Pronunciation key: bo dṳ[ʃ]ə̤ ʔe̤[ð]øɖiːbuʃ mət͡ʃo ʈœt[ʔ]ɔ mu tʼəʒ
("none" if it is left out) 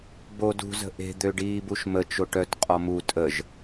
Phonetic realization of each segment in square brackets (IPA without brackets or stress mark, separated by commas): z, d̪, qʼ